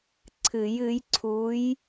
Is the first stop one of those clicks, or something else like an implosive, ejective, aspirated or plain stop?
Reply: click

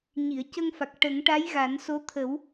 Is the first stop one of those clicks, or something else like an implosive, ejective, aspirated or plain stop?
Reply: plain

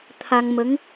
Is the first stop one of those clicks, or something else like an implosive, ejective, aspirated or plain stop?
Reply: aspirated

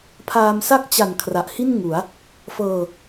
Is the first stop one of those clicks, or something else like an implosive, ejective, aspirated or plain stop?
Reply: aspirated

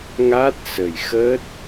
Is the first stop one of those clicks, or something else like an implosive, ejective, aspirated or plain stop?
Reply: plain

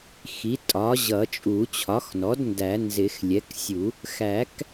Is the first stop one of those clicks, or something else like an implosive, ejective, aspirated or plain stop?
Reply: ejective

